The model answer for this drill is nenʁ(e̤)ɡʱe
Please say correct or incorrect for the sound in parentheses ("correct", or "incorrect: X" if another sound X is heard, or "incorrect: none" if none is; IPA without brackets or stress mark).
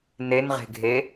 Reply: correct